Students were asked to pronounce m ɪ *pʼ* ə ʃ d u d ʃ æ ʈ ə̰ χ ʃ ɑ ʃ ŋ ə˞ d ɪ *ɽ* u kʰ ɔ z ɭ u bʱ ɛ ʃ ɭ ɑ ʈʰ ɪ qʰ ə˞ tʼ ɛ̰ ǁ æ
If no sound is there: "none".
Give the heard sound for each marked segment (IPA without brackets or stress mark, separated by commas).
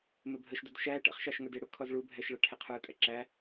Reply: bʱ, ɽ